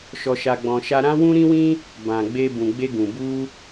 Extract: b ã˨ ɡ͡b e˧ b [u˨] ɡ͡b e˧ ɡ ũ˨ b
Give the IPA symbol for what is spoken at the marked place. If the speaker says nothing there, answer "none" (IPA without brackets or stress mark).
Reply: ũ˨